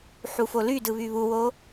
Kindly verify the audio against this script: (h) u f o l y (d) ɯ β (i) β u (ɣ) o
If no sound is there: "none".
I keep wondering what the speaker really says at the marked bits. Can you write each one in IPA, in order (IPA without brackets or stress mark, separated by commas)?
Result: ħ, d, y, w